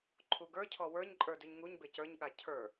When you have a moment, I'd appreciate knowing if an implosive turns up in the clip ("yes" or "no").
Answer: yes